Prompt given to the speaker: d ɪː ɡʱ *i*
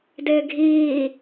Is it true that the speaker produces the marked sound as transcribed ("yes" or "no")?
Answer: no